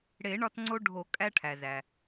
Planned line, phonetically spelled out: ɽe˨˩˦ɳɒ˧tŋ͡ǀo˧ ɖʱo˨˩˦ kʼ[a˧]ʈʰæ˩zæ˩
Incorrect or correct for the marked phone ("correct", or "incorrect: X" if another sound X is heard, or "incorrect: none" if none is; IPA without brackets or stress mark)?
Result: incorrect: æ˧